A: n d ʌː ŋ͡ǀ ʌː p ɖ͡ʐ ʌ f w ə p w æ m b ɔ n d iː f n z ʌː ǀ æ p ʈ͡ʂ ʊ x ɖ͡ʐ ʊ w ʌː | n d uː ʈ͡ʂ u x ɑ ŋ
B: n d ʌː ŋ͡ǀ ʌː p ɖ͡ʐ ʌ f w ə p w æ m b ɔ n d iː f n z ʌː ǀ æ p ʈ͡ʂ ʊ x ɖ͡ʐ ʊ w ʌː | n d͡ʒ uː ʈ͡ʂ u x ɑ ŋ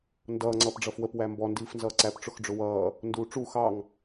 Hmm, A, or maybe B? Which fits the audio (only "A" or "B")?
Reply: A